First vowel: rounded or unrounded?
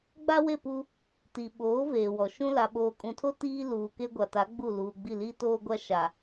unrounded